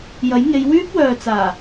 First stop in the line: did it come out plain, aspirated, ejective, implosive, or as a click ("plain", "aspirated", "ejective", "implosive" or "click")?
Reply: plain